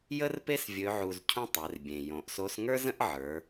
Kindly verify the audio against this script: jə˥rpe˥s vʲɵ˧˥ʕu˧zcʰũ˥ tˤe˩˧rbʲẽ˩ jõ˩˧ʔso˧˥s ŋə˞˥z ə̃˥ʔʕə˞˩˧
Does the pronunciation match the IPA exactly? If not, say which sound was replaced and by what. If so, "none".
none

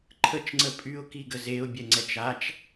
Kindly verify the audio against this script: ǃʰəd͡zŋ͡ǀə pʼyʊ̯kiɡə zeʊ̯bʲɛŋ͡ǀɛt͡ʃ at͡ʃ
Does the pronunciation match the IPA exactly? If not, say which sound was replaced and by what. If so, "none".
d͡z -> t͡ʃ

